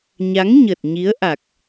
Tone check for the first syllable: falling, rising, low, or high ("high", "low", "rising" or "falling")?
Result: rising